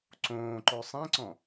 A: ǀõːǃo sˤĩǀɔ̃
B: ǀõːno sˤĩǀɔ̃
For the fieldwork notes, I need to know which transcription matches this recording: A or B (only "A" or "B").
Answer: A